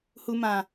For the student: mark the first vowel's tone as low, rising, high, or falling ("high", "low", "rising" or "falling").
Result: low